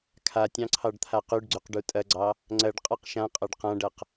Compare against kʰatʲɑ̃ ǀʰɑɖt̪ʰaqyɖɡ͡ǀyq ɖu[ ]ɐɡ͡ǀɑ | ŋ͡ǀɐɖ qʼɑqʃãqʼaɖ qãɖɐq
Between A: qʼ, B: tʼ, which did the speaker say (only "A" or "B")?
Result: B